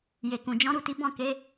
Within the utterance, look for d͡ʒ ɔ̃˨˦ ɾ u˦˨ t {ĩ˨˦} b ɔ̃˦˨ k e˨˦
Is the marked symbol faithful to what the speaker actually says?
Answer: no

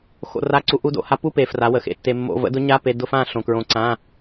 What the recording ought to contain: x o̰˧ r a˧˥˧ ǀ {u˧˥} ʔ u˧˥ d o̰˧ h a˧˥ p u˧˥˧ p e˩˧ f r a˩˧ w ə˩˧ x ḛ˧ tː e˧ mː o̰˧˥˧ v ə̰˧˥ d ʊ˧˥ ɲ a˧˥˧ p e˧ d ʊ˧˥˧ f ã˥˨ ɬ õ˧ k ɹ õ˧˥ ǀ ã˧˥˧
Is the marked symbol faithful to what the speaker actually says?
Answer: yes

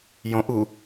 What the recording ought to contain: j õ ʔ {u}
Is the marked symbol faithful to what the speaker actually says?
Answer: yes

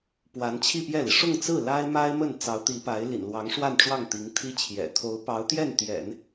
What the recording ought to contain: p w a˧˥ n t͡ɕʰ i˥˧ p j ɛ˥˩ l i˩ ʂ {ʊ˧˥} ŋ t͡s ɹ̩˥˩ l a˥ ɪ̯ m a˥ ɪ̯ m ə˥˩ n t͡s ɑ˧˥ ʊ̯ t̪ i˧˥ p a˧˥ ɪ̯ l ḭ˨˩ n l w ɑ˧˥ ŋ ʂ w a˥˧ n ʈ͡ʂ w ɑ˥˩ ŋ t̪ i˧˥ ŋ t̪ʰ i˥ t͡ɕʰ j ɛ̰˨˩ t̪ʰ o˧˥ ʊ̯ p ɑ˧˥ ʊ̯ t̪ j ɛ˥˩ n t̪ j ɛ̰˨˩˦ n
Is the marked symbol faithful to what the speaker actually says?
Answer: no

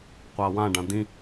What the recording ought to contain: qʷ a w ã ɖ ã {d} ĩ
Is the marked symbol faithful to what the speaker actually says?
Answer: yes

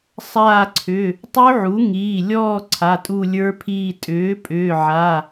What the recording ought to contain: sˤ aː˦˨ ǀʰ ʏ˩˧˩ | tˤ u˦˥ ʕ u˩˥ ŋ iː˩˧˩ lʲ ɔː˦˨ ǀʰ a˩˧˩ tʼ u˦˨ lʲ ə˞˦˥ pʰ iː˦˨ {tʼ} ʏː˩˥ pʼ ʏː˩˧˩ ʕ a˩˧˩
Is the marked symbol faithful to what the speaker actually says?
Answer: yes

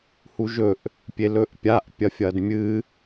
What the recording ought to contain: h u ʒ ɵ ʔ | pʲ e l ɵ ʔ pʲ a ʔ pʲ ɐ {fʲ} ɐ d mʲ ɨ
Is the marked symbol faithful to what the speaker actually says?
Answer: yes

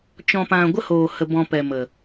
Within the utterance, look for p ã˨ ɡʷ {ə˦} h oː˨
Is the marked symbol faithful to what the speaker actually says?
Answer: yes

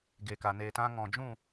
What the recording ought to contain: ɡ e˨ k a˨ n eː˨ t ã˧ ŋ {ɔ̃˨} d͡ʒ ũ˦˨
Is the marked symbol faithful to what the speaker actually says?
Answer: yes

